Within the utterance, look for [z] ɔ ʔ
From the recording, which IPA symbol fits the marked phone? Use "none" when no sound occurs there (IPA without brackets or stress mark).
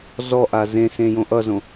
z